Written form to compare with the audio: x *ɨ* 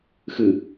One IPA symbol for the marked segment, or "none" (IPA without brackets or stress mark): ɨ